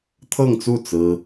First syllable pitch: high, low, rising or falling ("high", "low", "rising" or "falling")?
falling